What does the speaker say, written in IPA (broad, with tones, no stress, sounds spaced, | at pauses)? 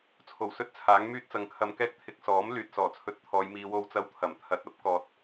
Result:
t͡sʰ o˨˩ w s ɵ˥ t̚ t͡sʰ aː˨˥ ŋ m yː˥ t̚ t͡s ɐ˧ ŋ kʰ ɐ˧ m k ɛː˥ k̚ t̪ʰ ɪ˧ k̚ s ɔː˨˥ m l yː˨ t̚ s ɔː˨˩ t͡sʰ ɵ˨˥ t̚ t̪ʰ ɔː˨˧ j m iː˧ w o˧ w t͡s ɐ˧ w t̪ʰ ɐ˨˩ m t̪ʰ ɐ˨˥ t̚ ɐ˥ p̚ k ɔː˨ t̚